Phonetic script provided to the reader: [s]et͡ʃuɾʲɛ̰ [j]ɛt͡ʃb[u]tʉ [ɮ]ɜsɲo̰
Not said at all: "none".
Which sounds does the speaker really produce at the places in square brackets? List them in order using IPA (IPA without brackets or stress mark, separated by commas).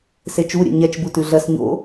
s, ɲ, u, ɮ